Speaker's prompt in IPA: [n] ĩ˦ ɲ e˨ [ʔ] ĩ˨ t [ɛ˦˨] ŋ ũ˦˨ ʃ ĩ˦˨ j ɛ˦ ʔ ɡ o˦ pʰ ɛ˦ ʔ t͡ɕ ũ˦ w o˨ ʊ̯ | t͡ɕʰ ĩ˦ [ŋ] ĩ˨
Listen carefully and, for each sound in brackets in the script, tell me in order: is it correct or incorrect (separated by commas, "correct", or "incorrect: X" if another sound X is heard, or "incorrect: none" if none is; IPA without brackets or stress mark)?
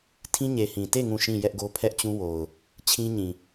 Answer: incorrect: tʰ, incorrect: h, incorrect: e˦˨, incorrect: ɲ